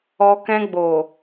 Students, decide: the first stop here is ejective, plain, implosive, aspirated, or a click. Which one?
plain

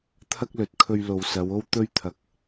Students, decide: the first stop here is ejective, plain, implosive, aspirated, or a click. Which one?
aspirated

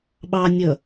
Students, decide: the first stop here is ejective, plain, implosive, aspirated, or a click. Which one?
implosive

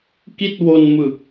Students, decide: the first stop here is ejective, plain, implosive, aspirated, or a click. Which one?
plain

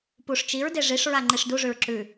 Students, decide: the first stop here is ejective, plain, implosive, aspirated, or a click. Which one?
plain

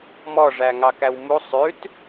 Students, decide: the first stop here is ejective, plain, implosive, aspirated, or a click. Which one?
plain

